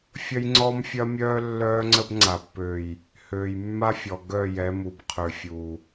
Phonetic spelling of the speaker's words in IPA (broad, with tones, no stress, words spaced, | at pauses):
fʲɐ˦jŋ͡ǀɔ˦mfʲɐ˦mʲœː˦ lːœː˦ŋ͡ǀə˦bŋ͡ǀa˨b pø˨j | høː˨jmːa˦fʲɔ˨ ɡœ˦˨jɛ˨˦mu˨b qʰø˨fʲu˨